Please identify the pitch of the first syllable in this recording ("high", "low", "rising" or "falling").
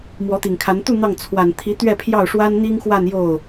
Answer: rising